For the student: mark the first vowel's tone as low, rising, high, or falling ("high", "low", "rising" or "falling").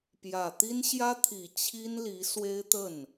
low